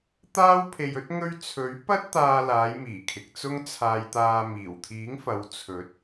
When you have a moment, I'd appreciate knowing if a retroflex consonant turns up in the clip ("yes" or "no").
no